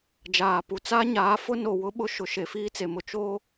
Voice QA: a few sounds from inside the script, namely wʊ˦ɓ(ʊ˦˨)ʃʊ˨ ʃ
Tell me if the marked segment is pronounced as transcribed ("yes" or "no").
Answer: yes